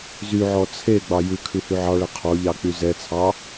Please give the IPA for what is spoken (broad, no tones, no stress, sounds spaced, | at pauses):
z y ʕ ɔ t͡sʰ e ɡ͡b ɑ j ʉ kʰ ʉ h y ʕ ɑ ɭ ɛ qʰ ɔ ʎ ɑ k͡p y z ɛ t͡sʰ ɑ